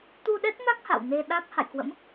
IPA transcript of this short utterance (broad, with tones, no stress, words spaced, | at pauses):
t̪u˧ɗɛ˦˥t̚na˦˥k̚ ha̰˧˨w ne˧ ɗa˦˥k̚ ha̰˧˨jkwə̰˧˥m